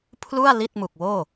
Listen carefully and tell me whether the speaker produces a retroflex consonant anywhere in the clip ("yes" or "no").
no